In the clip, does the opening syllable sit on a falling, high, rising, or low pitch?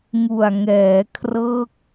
low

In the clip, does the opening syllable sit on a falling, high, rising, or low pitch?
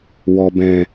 low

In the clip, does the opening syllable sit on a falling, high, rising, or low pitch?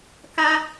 high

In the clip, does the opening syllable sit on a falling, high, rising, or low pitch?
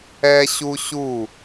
high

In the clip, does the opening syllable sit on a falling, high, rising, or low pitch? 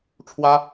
high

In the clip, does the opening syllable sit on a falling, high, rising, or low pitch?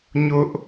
high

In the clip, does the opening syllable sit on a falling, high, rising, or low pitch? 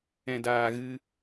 low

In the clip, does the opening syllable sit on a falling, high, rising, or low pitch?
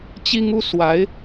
high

